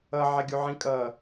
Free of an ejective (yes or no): no